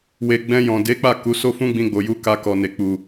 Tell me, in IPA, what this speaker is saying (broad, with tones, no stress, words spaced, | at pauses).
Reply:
we˨ ɡ͡bɛ̃˧jɔ̃˨ de˨˦k͡pa˦˨ ku˨˦so˦fũ˦ɡ͡bĩ˧ ɡ͡bo˨ju˧ ka˧ kɔ˨ne˨k͡pu˨